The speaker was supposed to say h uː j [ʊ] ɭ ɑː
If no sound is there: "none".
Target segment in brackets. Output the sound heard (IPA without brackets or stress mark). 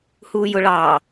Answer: ʊ